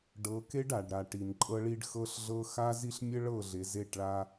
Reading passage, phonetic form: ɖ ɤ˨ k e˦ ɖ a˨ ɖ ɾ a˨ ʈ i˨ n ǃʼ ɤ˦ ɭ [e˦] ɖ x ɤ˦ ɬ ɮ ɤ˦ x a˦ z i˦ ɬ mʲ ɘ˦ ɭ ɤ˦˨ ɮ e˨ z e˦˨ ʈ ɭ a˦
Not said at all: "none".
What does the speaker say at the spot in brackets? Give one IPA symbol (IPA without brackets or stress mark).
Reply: i˦